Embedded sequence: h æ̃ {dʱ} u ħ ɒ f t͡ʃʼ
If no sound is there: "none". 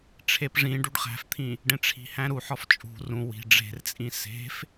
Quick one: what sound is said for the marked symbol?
ɾ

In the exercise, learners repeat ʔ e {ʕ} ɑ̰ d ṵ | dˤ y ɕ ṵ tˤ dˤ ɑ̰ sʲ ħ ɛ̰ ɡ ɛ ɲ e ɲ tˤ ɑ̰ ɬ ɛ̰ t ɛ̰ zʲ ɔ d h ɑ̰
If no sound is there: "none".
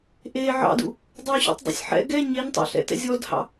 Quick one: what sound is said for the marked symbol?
ʕ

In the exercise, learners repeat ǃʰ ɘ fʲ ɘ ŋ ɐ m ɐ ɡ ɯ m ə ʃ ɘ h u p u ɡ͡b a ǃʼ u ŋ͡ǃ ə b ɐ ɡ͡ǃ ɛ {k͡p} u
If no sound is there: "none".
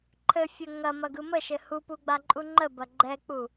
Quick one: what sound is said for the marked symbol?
k͡p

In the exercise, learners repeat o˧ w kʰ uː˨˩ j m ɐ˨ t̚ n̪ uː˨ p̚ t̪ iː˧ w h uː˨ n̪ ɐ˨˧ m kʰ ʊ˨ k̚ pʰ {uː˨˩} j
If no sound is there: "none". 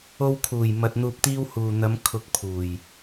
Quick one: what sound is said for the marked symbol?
uː˨˩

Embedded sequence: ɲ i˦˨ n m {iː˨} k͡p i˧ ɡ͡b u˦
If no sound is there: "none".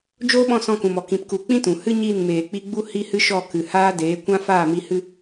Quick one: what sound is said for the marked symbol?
eː˨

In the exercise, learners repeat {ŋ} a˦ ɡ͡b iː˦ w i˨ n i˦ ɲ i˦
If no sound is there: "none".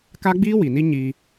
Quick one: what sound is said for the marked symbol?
k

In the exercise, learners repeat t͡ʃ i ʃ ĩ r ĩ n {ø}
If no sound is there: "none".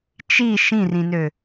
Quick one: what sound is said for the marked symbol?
ø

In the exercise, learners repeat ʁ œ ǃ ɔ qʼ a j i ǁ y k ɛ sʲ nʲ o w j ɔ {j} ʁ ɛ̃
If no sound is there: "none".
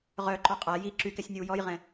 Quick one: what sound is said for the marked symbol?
j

